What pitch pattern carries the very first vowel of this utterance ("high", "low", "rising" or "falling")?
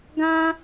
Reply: high